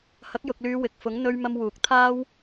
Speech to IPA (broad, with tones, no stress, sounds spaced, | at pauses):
h ɐ˨˥ k̚ j ʊ˨ k̚ l yː˨˧ w ɪ˨ k̚ f ʊ˨˥ ŋ n̪ ɵ˥ ɥ m ɐ˧ m w uː˨˥ k̚ t̪ʰ aː˥ w